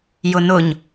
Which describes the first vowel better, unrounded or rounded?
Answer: rounded